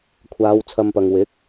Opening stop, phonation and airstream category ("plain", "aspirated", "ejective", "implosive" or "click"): aspirated